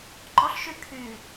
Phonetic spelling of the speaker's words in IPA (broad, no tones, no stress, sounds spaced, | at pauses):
ɡ͡ǃ ɔ ɬ ʃ y kʰ y